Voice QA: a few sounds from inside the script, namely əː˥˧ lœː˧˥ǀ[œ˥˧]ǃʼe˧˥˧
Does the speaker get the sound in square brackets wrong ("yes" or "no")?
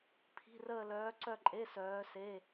no